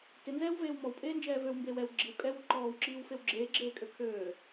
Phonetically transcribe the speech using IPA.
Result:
tɪnzɛːwveːw mɔwpʼeːnd͡ʒɛː vøwmbeːw ɛw ɡ͡ǁiw kʼɛwu ǃɔːwǁiːwfew ɡ͡ǁeːɡ͡ǁeːkʼø kʰøː

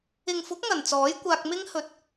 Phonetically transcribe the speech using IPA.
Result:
ɪ˨ŋfʊ˨˥k̚ ŋɐ˨˩n t͡sɔː˨˥jkʷaː˧k̚mɪ˥ŋ hɵ˨˥t̚

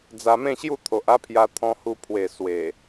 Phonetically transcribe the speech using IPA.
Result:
d͡za˧mẽ˥˧ɕju˥˧ t̪ʰo˨ʔa˦pʰja˧ t̪ʰɔ̃˧hu˧ pʰwe˨˩ swe˨˩

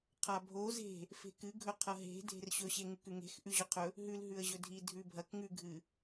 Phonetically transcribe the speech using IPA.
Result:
qʰabʱo ze̤ | fe̤kɨɡʱɵ qʰɐɦe̤ dʱe̤rɕɵɕeŋʉk ʉŋe̤x ʔʉʑɵqʰɵ | ɦʉl ɦʉə̯ʑɵdʱi dʱʉbʱɐk ŋʉɡʱɨ

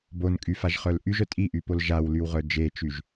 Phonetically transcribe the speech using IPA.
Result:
bonkʼy faʒχœlʔyʒœ tʼiʔy polʒawlyw ʁœd͡ʒet͡ʃyʒ

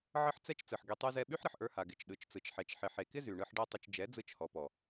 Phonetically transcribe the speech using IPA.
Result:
ʕə˦ħt͡sɛ˦t͡ʃ t͡sɯ˨ħɡe˧tˤy˦zɛ˦ ɓy˦ħɾə˨ħʔə˞˧ha˨ ɡɪ˨t͡ʃɗɯ˨t͡ʃt͡sɯ˨t͡ʃħɛ˨t͡ʃ ħɪ˨ħe˨kɪ˦ zy˨ɳɯ˧ħ ɖɛ˦tˤɪ˧t͡ʃ d͡ʒɛ˨˦d͡zɯ˧t͡ʃhɔ˨pɔ˨

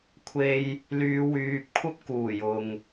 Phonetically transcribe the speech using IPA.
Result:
kʷʰe˧j | lyː˨˧wyː˨p̚kʷʰɐ˥p̚ kuː˨˩j ʊ˨ŋ

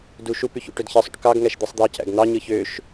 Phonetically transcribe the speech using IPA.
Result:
du ʃupyçṵ ʈødçesˤṵʈ kɑɡ ŋæʃd̪isˤd̪ɑ cæ̰ɡn̪ɑ ɲɯçøʃ

